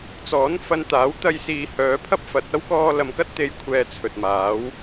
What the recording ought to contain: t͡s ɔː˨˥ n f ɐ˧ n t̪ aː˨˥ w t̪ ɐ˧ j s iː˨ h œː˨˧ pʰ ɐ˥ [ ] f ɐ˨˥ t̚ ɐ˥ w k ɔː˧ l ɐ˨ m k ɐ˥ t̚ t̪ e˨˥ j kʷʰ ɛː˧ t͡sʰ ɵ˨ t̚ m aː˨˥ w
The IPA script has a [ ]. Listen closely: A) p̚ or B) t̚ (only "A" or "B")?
A